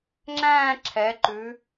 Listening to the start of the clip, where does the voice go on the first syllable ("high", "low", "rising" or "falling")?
falling